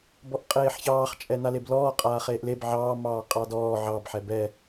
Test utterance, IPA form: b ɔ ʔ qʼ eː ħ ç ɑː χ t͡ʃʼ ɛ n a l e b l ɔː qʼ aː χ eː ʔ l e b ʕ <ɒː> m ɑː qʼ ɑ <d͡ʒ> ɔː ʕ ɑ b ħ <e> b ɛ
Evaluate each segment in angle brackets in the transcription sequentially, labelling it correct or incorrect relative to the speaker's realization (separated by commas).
incorrect, incorrect, incorrect